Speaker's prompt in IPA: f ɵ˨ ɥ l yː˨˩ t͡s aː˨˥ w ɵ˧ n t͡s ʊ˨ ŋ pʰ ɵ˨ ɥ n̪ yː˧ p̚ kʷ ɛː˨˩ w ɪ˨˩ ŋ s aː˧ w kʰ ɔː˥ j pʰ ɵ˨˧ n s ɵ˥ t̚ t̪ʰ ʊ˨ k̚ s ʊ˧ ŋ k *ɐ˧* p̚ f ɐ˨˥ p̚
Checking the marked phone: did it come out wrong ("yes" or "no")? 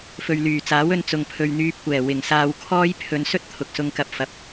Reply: no